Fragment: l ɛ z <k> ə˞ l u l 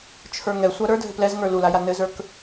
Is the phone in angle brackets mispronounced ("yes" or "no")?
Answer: yes